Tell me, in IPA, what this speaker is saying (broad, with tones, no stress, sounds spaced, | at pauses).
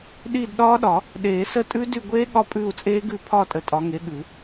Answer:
ɗ i˦˨ d ɗ ɒː˦˥ ɗ ɒ˨˩˦ | ɗ eː˨˩˦ s ə˦˨ tʼ ʉ˦˥ d y˦˨ ɡʷ eː˦˥ ɠ ɒ˦˥ pʼ ʉː˦˨ u̯ t͡sʼ eː˦˥ ɡ ʉ˦˨ pʰ ɒ˦˨ tʼ ə˨˦ tʼ ɒ˨˦ ŋ e˨˦ ɠ ʉ˨˩˦